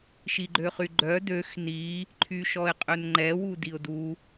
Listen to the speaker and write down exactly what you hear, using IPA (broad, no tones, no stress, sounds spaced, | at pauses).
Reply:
ʃ i ɡ͡ǃ ø χ y ɡ͡ǃ œ d ø x n i | ǃʰ y ʃ ɔ ɪ̯ qʼ ø n ŋ͡ǃ ɛ w u d i ʊ̯ d u